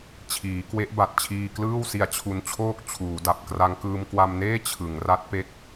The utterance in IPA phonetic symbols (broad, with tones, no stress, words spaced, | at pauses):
t͡ɕʰiː˩˦kwe˦˥ʔba˨˩t̚ t͡ɕʰiː˧klɯː˥˩wsi˧a̯ t͡ɕʰu˦˥nt͡ɕʰoː˥˩k̚ t͡ɕʰuː˩˦da˨˩p̚ kra˧ŋkɯː˧mkwa˧mneː˥˩ t͡ɕʰɯ˩˦ŋra˦˥t̚pe˦˥k̚